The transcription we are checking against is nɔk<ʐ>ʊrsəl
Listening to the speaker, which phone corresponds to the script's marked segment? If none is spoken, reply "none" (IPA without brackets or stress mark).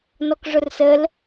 ʐ